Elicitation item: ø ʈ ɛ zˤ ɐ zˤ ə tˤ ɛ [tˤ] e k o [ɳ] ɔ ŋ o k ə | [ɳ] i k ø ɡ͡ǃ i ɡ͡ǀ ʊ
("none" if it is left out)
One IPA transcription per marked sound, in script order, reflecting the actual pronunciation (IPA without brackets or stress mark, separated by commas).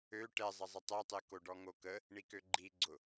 tˤ, ɖ, ɳ